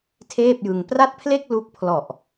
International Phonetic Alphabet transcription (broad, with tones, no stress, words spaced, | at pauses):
tʰeː˥˩p̚jɯ˧ŋ pra˥˩t̚pʰle˥˩k̚ lu˦˥k̚pʰlɔ˨˩ʔ